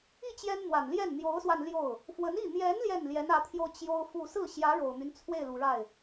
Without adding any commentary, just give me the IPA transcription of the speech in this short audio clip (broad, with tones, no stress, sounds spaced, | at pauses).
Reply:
i˥˩ t͡ɕ j ɛ˥ n n̪ w a˨˩ n l j ɛ˥˩ n n̪ j o˧˥ ʊ̯ s w a˧ n l j o˥˩ ʊ̯ | f w ə˧˥ n i˥˩ n̪ j ɛ˧˥ n l j ɛ˥˩ n l j ɛ˧˥ n ä˧˥ t̪ʰ j o˧ ʊ̯ t͡ɕ j o˥ ʊ̯ f u˥˧ s ɹ̩˥˩ ɕ j ä˧˥ ɻ o˨˩ ʊ̯ n̪ y˦ n t͡sʰ w e˥˩ ɪ̯ l u˨˩ ɻ a˥˩ ɪ̯